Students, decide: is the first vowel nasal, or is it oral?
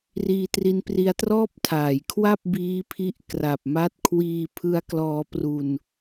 oral